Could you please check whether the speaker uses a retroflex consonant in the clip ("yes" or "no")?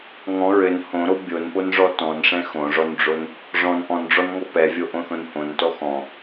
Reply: yes